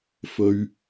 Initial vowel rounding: rounded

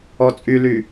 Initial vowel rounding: rounded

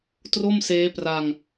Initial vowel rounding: rounded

